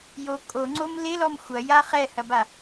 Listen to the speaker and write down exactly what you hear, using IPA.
j o kʼ o ŋ͡ǀ o m l ɪ l ɔ m xʷ ɐ j a χ ɛ h ɐ b a

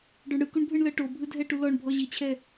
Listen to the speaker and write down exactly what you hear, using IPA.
ɖ ɔ ɳ ɽ ɯ k u ɳ bʱ ɯ ɳ l ɤ ʈ o bʱ ɯ dʱ ɛ ʈ u l ɔ ɳ bʱ ɔ ʑ i t͡ɕʰ ɛ

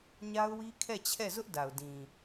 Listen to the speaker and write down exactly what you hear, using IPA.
ɲ a˦ ʊ̯ w i˦ kʰ ɛ˦˨ t͡ɕʰ ɛ˦˨ z ʊ˦ ʔ d a˨ ʊ̯ d ĩ˨

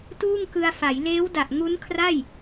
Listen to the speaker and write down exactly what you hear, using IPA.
t uː˥˩ ŋ k ɯ˧ a̯ f a˩˦ j l eː˦˥ w d a˨˩ ʔ ŋ u˦˥ n kʰ r a˥˩ j

